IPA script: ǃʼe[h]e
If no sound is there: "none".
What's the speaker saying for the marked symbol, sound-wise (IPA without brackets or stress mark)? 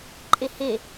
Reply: h